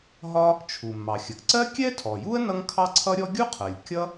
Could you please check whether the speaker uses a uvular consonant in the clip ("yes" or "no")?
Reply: yes